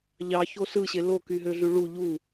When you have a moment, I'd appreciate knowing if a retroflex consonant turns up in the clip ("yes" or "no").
yes